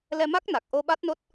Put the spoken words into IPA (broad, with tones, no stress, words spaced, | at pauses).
lɛ˧ma˦˥k̚na˨˩k̚ ʔo˧ɓa˦˥t̚no˦˥t̚